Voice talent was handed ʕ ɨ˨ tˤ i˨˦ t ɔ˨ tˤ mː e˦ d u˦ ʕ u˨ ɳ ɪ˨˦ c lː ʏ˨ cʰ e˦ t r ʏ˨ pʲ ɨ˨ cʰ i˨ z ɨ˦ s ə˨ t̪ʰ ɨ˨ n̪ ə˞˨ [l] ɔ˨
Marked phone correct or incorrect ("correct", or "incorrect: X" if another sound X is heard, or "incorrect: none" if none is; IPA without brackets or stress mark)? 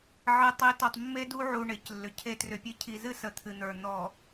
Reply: incorrect: n̪